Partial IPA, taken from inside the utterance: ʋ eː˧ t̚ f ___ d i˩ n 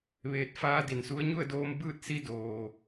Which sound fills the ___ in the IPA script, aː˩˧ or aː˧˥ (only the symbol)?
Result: aː˧˥